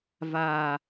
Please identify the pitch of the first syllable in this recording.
low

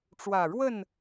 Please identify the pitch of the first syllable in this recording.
low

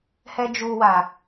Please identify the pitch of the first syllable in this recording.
low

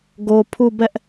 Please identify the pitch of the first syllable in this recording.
low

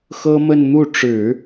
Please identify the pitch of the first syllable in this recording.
high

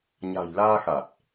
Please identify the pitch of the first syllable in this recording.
low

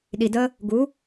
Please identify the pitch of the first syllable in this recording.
low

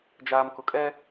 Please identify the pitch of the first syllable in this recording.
low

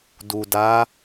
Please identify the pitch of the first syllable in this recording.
low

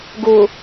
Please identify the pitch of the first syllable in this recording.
low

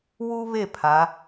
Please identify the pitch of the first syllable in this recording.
high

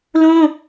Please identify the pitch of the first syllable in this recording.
high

